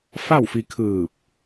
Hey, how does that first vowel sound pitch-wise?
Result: falling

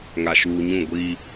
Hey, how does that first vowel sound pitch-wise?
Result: low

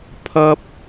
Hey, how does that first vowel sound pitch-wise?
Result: high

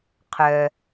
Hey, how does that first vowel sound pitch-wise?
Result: low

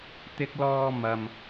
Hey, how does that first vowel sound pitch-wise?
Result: high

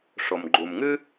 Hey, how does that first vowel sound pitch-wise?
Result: low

